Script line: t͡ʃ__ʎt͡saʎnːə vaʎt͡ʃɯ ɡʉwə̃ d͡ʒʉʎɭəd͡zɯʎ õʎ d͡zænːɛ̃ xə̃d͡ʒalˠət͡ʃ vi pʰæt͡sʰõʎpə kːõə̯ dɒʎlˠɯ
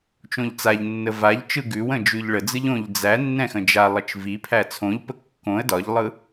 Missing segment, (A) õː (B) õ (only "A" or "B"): B